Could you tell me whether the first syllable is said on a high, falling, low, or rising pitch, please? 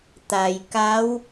low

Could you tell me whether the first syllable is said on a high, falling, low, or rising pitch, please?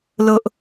low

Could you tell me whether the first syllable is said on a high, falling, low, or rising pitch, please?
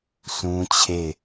high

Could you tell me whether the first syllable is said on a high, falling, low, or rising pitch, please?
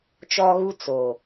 high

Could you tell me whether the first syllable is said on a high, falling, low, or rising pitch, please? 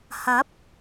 rising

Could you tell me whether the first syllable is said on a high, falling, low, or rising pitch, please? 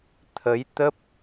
rising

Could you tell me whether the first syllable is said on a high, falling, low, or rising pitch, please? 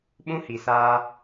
high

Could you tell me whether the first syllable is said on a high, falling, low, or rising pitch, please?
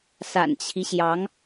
low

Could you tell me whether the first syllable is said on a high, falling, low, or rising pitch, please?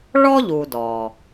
high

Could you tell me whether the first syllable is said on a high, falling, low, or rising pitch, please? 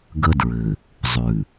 high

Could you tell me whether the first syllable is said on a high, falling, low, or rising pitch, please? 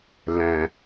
low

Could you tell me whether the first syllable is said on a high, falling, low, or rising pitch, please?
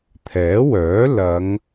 rising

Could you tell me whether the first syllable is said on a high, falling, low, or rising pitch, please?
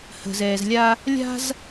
low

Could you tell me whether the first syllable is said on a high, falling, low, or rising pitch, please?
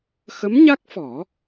rising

